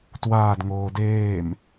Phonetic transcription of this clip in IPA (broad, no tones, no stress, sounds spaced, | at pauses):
t w aː d ŋ oː d eː m